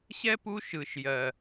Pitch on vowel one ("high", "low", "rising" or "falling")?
high